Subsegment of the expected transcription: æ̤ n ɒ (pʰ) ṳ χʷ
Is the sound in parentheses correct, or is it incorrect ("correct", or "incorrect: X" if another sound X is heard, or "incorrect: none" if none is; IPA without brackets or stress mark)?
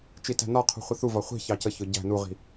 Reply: incorrect: qʰ